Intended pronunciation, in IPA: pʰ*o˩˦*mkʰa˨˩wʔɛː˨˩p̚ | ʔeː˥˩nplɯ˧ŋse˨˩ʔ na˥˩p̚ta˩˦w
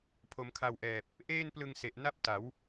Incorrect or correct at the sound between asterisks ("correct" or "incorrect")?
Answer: correct